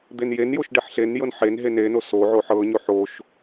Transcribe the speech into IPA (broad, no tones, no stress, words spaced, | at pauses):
d̪enjenjoʃ ɖeħɬenjɤn ħenɦe neno so ʕoħɤɲo ħoʃ